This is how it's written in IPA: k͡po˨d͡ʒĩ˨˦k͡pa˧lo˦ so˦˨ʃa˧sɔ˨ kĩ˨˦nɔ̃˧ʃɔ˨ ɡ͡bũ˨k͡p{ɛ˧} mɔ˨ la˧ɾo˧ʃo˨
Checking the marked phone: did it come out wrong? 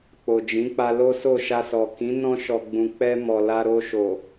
no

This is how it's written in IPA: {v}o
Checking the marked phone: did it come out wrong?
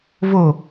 no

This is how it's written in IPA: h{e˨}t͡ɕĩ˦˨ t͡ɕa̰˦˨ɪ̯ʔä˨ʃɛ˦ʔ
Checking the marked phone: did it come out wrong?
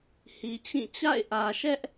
yes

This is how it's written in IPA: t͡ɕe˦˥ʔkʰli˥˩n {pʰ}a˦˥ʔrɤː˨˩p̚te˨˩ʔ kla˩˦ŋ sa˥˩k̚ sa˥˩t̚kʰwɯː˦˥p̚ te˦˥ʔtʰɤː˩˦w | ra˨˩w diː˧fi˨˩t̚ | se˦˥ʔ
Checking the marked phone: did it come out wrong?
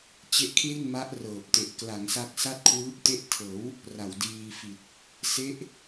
yes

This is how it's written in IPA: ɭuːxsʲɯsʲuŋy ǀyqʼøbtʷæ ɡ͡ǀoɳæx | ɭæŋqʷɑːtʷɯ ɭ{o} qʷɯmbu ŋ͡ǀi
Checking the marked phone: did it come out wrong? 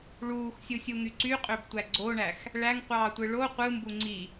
no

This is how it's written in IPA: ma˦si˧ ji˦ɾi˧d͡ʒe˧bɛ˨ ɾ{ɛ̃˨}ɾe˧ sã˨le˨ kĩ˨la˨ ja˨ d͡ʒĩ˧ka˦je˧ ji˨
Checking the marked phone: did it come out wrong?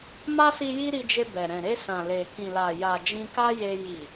no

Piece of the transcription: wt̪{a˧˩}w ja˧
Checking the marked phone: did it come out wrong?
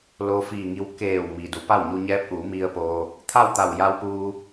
no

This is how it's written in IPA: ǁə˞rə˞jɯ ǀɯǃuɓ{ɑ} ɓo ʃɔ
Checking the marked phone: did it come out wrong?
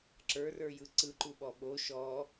yes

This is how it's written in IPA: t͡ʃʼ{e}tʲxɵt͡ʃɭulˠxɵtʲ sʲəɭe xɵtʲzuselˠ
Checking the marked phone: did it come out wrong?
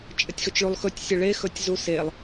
yes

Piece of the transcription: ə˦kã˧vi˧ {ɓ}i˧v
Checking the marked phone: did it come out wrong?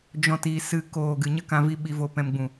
no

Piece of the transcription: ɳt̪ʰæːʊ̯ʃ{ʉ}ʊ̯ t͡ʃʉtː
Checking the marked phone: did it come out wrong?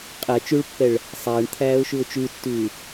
no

